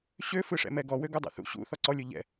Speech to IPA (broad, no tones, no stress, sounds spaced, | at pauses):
ɕ ø f ɯ ʂ ɛ̰ m ɛ ɡ ɔ w ø ɡ u dˤ ɛ̰ θ ṵ ɕ ṵ θ ɔ ǀ ɔ lʲ o ʎ ɛ̰